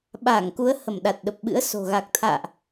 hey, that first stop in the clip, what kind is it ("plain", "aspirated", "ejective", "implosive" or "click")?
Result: implosive